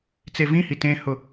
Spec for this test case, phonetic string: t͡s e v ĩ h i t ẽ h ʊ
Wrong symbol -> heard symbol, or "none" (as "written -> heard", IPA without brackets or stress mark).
none